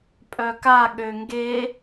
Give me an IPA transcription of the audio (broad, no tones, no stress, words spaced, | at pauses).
pʼœka ɠøŋɡe